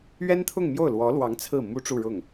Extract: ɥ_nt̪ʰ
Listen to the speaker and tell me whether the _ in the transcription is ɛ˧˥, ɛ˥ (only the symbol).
ɛ˥